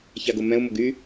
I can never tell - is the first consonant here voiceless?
yes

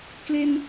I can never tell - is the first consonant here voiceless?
yes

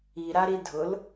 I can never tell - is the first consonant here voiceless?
no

